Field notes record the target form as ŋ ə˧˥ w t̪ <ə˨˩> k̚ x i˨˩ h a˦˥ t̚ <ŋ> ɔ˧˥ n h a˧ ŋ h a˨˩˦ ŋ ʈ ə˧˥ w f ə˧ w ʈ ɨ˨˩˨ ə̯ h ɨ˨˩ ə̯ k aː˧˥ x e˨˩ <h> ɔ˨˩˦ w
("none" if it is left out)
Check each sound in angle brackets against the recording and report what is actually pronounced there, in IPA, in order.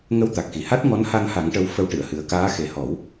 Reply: a˨˩, ŋ, h

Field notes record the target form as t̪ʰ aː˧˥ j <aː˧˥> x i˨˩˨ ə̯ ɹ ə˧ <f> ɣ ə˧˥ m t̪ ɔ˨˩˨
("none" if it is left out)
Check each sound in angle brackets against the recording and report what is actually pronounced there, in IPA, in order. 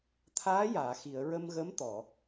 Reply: aː˨˩˨, m

